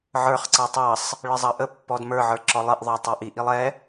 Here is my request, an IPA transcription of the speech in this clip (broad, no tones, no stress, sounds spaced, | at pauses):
ʕ ə˞ χ ǀ ɑ tˤ ɑ sˤ | ɭ ɪ zˤ ɑ ʔ ə pː ɔ d m ə˞ ʕ ə˞ ǁ ɔ lˠ ɪ ʔ ðˤ ə˞ tˤ ə˞ ʔ i ʔ i lˠ ɛ